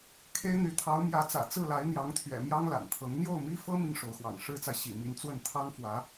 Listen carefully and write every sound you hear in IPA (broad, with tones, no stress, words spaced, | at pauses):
kʰe˥ɪ̯n̪y˧˥ t̪ʰɑ˧˥ʊ̯mjä˧˥t͡sä̰˨˩ t͡sɹ̩˥˩la˧˥ɪ̯n̪jɑ˧˥ŋt̪ʰɥɛ̰˨˩ mjɑ˥ŋla̰˨˩nt̪ʰɤ˧˥ŋ n̪jo˥˩ʊ̯mi˥fɤ˥ mi˥˩ŋʂo˧˥ʊ̯xwɑ̰˨˩ŋ ʂɻ̩˥t͡sa˨ɪ̯ ɕḭ˨˩mi˧˥nt͡swə˥˩n t̪ʰɑ˥ŋfwä˧˥